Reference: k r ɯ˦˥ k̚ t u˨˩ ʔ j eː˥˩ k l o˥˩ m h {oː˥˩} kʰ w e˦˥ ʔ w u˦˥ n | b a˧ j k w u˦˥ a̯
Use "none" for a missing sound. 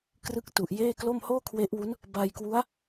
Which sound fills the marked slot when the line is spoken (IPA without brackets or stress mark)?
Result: oː˥˩